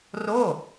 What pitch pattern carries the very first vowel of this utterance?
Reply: falling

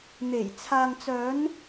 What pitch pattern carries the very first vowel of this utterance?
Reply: low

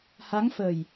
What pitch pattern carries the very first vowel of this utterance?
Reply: rising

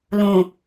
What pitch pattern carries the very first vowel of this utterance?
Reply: low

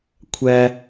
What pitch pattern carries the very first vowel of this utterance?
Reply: high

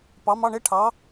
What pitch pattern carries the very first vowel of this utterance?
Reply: rising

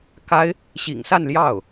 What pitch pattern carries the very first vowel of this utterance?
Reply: high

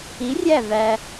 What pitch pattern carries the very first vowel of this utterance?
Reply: rising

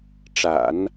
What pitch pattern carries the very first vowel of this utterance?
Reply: low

